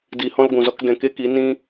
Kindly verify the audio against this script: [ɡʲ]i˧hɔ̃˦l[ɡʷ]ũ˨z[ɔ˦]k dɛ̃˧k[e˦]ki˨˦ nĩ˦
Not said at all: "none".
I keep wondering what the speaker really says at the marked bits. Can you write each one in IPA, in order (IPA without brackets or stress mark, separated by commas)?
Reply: d, ɡʷ, ɔ˦, e˦